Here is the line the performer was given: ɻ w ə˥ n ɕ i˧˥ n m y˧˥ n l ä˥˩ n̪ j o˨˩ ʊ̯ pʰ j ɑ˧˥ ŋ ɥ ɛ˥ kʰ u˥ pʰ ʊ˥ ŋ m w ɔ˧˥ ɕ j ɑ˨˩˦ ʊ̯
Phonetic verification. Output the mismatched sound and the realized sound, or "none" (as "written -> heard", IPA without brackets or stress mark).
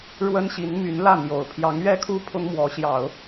none